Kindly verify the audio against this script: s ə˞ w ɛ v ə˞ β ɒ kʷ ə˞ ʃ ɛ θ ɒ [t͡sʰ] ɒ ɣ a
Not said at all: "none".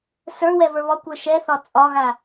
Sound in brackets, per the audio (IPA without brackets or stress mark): t͡sʼ